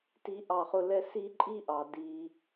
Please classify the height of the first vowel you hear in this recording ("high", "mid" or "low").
high